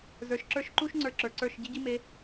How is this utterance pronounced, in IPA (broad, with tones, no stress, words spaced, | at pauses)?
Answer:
zə˞˨ʃ ǁə˞˦ʃǃu˦ʃŋ͡ǀə˞˨ ǁə˞˨ǀə˞˦˨ʃ ɟi˦ɟi˦me˨˦